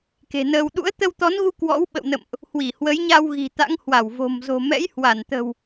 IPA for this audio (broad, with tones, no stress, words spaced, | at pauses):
ke̤˨˩nəː˧w ɗṵ˧˥ə̯t̪ə˧wt̪ɔ˨˦nɣu˧ kwɔ̰˧˥wɓə̰˧˨wnə̰˧˨mʔ | hwi˧˩ hwə˨˦jɲa˧w ɣi̤˨˩t̪a̰˧˥ŋ hwa˧˩wvo̤˨˩mzo̤˨˩mɛ̰˧˥j hwa˧˩nt̪ə̤˨˩w